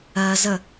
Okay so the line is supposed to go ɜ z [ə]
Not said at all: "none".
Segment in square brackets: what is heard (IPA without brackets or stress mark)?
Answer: ə